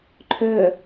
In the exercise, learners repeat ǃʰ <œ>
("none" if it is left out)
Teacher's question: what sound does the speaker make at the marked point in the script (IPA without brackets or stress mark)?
œ